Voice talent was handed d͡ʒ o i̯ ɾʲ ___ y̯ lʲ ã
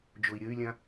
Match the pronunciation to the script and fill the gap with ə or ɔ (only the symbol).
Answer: ə